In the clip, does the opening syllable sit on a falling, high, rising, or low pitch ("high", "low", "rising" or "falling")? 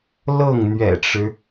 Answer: falling